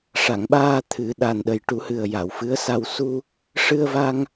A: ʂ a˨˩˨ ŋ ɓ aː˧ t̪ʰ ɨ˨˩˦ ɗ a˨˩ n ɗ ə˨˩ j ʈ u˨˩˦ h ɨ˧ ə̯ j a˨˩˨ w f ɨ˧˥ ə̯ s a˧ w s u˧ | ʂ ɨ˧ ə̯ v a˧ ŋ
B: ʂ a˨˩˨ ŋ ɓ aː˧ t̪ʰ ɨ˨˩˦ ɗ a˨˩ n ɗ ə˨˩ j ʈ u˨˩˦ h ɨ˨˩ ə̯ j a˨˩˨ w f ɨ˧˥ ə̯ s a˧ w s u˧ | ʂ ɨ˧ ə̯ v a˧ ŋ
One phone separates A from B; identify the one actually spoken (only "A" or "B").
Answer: B